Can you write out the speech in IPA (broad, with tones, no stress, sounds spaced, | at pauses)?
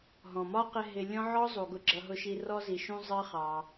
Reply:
ɦ ɔ̃˨ m ɒ˦ q ɪ˧ ɦ ɪ˧ lʲ ɔ̃˦ ʕ ɔ˦ zˤ u˨ ɡ ʊ˨ ɡ͡ǁ ʌ˨ ɦ ʊ˨ ʃ i˨ r ɔ˧ z i˨ ʃ ũ˧ zˤ ɜ˦ χ ɑ˧